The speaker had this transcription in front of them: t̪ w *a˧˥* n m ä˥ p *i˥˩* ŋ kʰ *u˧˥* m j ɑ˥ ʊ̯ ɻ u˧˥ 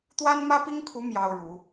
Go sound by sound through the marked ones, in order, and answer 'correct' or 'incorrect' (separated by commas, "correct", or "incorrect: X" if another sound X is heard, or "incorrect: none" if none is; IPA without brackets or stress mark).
incorrect: a˥, incorrect: i˥, correct